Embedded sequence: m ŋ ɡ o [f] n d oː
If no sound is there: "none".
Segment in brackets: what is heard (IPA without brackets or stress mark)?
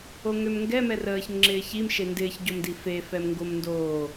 m